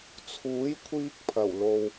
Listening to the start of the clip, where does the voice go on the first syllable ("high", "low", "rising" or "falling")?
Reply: rising